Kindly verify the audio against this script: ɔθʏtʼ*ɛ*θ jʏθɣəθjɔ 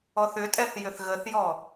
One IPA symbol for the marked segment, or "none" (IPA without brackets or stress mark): ɛ